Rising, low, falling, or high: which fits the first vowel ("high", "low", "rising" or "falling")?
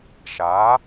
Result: rising